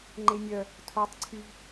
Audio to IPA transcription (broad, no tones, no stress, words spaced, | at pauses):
ŋ͡ǃenʲœ | tʰotˤ ǀʰyv